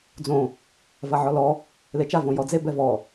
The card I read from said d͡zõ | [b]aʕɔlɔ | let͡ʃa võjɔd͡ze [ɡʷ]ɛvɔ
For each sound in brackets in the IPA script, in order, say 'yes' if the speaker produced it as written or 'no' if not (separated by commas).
no, no